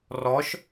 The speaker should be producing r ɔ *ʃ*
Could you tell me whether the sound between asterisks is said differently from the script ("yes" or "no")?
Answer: no